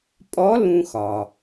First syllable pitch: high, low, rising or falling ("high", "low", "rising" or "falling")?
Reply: rising